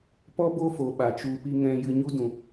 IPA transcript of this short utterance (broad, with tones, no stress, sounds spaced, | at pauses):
p ɔ˦ b o˦ f o˨ ɓ a˨ t͡ʃ u˧ p i˦ ŋ ɛ̃˧ j ɨ˧ ɲ u˦ d ũ˨